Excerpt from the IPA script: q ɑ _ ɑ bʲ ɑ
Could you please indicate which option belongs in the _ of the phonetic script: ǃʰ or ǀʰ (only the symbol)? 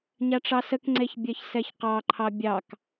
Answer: ǃʰ